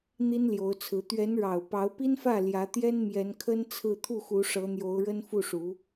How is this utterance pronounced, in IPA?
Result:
n̪ i˥ n l j o˧˥ ʊ̯ t͡sʰ ɹ̩˧˥ t̪ ɥ ɛ˧˥ n ɻ ɑ˨˩ ʊ̯ p ɑ˧˥ ʊ̯ p i˥ n f ä˥˩ l j ä˧˥ t̪ j ɛ˥ n m j ɛ˧˥ n kʰ ə˥ n t͡sʰ ɹ̩˥˧ t̪ʰ u˥˩ x u˧˥ ʂ ɤ˧˥ n̪ j o˧˥ ʊ̯ ɻ ə˥ n f u˥˩ ʂ u˧˥

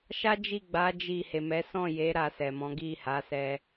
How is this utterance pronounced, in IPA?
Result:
ʃ a˦ d͡ʒ i˦˨ ɡ͡b a˨˦ d͡ʒ i˦˨ h e˨ m ɛ˨˦ s ɔ̃˦˨ j e˨˦ ɾ a˧ s ɛ˨ m ɔ̃˨˦ ɡ i˦˨ h a˨˦ s ɛ˧

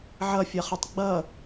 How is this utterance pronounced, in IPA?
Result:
ʕ ʌ fʲ ʌ χ ɯ tˤ ɡ͡b ʌ

